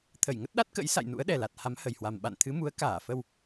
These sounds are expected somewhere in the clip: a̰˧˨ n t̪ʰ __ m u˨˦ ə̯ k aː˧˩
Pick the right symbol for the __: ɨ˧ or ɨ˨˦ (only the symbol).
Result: ɨ˨˦